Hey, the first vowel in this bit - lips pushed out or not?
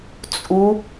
yes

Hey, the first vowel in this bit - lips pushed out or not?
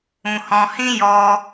yes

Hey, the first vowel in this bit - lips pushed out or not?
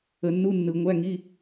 no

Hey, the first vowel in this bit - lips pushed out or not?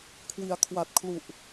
no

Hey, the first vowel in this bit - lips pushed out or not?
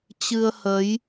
no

